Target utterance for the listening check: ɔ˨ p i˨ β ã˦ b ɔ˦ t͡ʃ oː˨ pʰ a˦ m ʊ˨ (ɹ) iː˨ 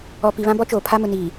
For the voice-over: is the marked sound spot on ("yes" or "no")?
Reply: no